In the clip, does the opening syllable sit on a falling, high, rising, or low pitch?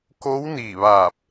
rising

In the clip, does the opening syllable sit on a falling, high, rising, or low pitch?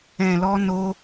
low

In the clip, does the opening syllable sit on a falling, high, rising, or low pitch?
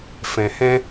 low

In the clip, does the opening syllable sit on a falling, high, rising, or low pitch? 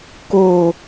low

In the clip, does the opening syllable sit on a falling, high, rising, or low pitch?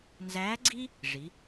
rising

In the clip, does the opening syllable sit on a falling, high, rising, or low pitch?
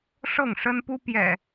falling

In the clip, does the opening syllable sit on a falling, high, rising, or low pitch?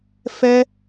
high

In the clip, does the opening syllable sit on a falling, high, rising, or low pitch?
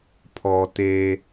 low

